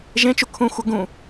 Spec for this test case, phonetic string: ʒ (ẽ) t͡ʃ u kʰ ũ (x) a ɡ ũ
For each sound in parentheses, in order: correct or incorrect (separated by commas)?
correct, incorrect